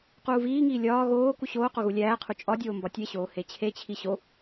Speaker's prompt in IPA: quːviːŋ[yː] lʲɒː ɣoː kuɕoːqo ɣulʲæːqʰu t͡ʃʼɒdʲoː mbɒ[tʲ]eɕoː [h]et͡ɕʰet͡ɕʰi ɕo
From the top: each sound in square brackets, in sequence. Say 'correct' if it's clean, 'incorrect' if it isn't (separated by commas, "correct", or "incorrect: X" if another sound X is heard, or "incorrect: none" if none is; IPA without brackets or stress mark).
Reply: incorrect: iː, correct, correct